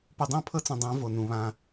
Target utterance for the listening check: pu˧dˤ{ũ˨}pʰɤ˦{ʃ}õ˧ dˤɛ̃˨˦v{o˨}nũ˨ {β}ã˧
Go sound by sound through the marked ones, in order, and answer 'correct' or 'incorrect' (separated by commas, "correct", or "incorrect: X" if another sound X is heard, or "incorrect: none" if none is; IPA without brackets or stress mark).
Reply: incorrect: ũ˦˨, incorrect: t͡s, correct, correct